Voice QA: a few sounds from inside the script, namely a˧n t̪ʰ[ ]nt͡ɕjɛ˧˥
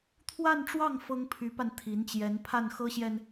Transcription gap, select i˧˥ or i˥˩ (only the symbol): i˧˥